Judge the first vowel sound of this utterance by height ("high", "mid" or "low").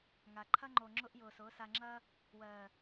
low